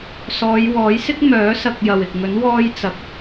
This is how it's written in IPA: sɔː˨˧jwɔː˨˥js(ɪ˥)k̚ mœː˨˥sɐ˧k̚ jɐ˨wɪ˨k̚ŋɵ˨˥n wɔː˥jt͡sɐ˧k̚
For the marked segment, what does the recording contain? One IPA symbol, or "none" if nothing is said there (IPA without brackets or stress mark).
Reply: ɪ˥